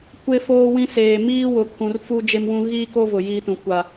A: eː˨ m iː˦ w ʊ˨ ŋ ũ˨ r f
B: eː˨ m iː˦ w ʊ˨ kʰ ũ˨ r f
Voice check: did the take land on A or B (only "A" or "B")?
B